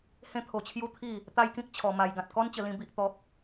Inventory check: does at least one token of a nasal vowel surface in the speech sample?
yes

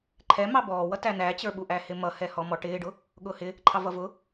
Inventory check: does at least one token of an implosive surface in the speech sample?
yes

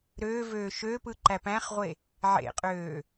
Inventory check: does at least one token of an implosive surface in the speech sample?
no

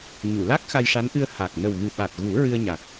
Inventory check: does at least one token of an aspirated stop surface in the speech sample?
no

